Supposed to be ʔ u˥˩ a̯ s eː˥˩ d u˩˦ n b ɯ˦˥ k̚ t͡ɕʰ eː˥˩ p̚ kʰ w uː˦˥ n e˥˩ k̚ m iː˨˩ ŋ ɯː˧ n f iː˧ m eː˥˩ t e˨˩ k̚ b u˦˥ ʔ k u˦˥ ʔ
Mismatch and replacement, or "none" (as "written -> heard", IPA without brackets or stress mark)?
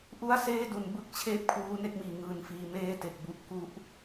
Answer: none